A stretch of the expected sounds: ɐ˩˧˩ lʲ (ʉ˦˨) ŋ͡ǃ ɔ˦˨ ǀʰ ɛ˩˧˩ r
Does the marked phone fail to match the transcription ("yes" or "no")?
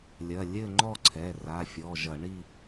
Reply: yes